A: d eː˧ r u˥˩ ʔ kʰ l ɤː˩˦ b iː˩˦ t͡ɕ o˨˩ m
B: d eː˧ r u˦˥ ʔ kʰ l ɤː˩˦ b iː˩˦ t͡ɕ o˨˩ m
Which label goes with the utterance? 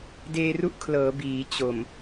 B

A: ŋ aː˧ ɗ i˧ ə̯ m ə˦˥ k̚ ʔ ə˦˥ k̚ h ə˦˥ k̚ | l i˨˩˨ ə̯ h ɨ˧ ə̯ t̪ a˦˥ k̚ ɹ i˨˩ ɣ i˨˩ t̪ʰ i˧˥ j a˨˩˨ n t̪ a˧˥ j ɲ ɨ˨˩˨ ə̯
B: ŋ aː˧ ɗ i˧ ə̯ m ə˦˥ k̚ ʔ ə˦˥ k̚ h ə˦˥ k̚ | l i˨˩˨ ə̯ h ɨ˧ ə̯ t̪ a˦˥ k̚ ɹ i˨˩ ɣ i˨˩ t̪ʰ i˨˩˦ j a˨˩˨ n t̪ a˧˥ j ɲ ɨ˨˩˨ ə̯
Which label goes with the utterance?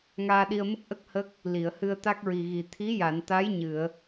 A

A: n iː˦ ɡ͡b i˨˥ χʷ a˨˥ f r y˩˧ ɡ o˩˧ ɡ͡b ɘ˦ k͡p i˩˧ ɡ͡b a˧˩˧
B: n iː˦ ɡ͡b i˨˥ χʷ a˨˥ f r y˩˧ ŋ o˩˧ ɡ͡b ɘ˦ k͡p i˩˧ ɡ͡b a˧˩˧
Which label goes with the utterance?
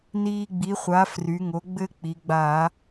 B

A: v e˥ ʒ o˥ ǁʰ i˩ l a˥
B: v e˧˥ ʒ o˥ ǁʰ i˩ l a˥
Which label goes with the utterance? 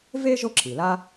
A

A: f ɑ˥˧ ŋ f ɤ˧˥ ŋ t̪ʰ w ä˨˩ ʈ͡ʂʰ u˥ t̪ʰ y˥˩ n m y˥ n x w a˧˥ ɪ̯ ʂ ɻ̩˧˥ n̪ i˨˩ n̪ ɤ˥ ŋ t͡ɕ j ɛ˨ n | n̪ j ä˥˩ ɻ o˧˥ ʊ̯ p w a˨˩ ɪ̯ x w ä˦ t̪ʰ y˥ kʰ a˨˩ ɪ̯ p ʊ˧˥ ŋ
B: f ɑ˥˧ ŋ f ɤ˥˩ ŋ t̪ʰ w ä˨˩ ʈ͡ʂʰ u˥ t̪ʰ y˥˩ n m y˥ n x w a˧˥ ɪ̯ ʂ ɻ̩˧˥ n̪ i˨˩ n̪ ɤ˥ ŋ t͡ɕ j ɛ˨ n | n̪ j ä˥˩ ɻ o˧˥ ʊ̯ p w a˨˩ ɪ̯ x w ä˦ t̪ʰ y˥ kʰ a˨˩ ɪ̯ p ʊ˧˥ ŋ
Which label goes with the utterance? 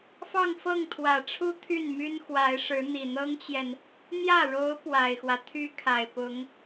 B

